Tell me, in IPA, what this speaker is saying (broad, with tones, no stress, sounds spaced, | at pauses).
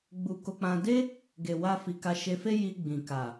ɡ͡b u˧ k o˧ k͡p ã˧ d e˦ | ɡ e˨ w a˧ f i˨ k a˧ ʃ e˧ f e˦ j i˧ ɡ͡b ĩ˨ k a˨